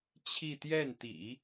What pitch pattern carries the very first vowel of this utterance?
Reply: falling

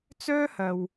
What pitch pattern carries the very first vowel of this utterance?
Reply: high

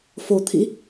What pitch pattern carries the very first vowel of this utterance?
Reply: low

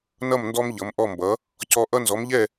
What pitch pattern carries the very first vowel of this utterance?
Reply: falling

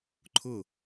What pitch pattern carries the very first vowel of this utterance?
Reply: falling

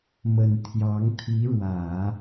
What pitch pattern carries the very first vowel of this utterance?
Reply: low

